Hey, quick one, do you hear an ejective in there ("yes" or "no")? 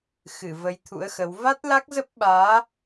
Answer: no